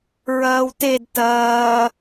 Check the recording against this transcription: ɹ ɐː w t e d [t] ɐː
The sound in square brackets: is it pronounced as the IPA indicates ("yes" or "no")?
yes